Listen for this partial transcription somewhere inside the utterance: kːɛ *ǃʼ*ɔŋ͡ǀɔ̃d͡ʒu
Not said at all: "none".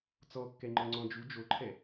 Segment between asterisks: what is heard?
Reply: ŋ͡ǃ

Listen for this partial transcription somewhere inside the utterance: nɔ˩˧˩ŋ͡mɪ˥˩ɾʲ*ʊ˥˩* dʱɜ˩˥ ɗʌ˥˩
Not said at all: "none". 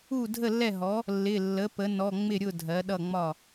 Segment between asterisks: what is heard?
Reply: ʊ˥˩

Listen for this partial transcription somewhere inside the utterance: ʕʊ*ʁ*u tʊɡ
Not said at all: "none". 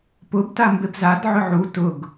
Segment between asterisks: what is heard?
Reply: ʕ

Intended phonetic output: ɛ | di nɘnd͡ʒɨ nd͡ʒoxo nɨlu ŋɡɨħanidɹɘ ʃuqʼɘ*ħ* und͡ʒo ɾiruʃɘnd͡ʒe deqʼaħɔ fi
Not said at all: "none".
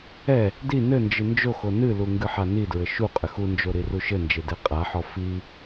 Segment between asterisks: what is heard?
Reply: x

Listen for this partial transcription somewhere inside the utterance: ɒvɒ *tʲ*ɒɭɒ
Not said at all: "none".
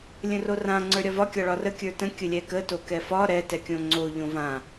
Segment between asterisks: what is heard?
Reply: kʲ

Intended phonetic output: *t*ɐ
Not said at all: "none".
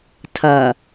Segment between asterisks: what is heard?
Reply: tʰ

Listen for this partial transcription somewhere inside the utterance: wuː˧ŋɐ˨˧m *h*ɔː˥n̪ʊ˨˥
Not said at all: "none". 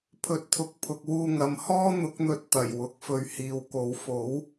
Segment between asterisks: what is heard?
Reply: h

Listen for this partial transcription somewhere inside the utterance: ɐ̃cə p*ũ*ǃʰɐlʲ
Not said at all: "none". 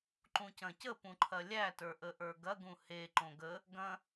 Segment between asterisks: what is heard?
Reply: ũ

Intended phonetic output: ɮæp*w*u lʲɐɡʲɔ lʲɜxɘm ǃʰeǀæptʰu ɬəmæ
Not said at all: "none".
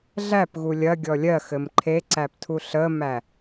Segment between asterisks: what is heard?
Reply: ɣ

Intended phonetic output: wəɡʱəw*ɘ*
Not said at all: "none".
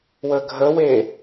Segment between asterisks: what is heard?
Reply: e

